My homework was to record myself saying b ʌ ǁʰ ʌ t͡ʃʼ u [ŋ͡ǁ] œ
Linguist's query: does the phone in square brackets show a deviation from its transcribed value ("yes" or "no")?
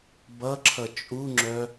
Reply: no